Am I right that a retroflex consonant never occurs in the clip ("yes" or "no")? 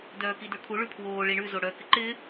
no